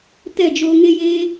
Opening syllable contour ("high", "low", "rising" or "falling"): falling